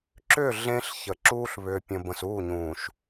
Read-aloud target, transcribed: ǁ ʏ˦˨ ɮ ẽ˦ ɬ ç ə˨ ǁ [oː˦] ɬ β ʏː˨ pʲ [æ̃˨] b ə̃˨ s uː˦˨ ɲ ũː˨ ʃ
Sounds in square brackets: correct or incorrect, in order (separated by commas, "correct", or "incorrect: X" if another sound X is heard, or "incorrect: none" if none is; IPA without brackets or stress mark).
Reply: incorrect: uː˦, incorrect: ə̃˨